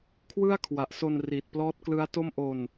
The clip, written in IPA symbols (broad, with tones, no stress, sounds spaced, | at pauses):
kʰ w ɯ˥˩ a̯ kʰ w a˨˩ ʔ s o˧ n r i˨˩ t̚ p l ɔː˦˥ t̚ k l ɯ˦˥ a̯ t o˥˩ m ʔ o˧ n